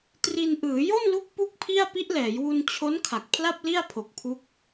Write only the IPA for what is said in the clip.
t r i˧ n ʔ ɯː˩˦ j o˥˩ n l u˦˥ k̚ p u˥˩ k̚ pʰ i˥˩ a̯ p i˦˥ ʔ l ɛː˩˦ j w u˧ n t͡ɕʰ o˦˥ n kʰ a˨˩ k̚ pʰ l a˥˩ p̚ l i˥˩ a̯ pʰ o˨˩ k̚ pʰ u˦˥ k̚

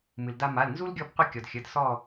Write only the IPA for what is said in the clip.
m ɨ˩ l d a˧ m a˩˧˩ l n z u˥ l ɡʲ ɔ˥˩ b qʷ ɨ˥˩ kʲ ɔ˩ d xʲ ə˩˧˩ d s ɔ˥˩

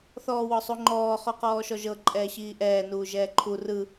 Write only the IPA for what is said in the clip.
θ ɔː w ɔ sˤ u ŋ͡ǃ ɔː χ ɔ q ɔː ʃ ɔ ʒ ɤ ǃʼ ɛː ɕ iː ʔ ɛː n uː ʒ ɛː ǃʰ u r ɯ

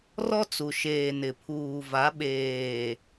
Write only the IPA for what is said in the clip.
r ɔ˦ t͡s u˨ ʃ eː˨ n ɪ˨ pʰ uː˨ v a˨˦ ɓ eː˨

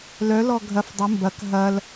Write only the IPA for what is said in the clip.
l œ l ɔ ɡʱ ɐ f dˤ ɪ m b ɐ k ɦ ɐ l

